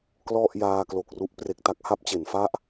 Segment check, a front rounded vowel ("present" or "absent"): absent